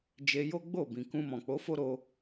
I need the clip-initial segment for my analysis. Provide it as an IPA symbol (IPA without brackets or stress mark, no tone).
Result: d͡ʒ